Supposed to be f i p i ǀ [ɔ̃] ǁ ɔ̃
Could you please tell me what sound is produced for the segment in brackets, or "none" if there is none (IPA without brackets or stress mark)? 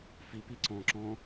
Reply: ɔ̃